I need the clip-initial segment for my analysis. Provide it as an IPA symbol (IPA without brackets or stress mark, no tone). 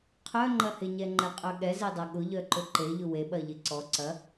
qʰ